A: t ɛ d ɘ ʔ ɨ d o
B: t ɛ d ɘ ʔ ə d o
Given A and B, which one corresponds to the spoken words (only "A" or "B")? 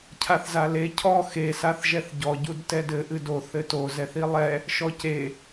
A